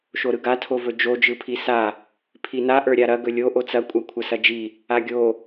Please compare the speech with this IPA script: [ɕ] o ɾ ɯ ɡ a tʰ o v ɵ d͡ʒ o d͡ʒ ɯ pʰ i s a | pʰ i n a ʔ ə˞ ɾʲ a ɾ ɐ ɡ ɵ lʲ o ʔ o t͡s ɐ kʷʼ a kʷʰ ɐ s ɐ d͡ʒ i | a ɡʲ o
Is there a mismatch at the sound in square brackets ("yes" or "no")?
yes